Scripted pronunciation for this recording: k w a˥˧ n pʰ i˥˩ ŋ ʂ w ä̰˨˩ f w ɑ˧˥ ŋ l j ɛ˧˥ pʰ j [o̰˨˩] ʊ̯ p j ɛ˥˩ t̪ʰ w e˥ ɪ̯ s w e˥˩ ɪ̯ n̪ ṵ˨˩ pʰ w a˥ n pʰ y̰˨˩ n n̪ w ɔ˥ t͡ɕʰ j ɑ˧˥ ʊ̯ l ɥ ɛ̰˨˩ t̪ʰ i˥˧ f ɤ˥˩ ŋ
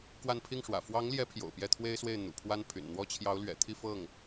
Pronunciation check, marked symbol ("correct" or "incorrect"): correct